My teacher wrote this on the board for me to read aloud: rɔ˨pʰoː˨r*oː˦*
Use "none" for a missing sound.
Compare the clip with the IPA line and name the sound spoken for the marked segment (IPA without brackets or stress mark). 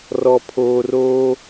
oː˦